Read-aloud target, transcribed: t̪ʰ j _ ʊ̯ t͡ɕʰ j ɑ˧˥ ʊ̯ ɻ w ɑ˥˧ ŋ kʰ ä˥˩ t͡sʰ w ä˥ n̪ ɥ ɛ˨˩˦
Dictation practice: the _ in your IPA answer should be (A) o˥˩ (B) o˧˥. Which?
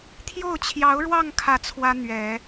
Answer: A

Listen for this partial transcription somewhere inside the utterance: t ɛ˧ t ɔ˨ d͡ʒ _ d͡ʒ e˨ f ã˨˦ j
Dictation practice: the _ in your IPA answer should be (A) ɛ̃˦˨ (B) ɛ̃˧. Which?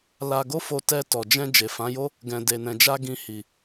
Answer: B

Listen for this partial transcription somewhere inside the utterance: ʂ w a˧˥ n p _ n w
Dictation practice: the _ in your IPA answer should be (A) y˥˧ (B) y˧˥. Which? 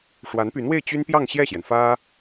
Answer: B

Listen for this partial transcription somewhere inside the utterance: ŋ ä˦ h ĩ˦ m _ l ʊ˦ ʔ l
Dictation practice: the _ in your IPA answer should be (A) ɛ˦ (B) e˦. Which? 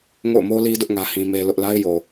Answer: B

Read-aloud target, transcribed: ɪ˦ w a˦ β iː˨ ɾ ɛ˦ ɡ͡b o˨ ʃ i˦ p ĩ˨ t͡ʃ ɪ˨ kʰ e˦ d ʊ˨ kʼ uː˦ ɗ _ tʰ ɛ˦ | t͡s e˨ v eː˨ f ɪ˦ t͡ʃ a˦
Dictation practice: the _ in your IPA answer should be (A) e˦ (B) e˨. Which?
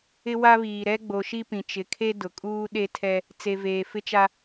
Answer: A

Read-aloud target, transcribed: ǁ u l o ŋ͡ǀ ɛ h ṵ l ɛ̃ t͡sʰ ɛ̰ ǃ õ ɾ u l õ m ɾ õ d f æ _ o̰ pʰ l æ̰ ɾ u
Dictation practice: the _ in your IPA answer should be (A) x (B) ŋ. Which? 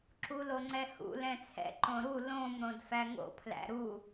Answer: B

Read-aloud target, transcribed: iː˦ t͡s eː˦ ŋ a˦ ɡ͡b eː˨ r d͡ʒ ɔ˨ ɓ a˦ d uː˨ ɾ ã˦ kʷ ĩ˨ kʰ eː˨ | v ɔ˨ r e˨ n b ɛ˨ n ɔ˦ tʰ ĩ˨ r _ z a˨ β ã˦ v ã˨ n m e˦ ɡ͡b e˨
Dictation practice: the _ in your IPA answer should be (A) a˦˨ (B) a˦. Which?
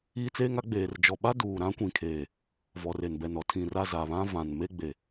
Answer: A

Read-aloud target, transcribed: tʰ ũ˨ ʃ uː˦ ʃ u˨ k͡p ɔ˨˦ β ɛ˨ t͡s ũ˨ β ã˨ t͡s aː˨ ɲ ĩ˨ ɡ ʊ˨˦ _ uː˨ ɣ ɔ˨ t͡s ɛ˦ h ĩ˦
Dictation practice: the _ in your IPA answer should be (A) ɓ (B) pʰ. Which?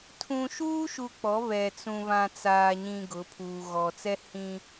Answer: B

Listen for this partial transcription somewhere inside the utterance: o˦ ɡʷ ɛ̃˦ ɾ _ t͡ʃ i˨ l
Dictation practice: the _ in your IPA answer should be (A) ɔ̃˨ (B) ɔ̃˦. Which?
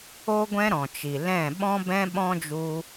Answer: A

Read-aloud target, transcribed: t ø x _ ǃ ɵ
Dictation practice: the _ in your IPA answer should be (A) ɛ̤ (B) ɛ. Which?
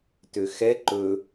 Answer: B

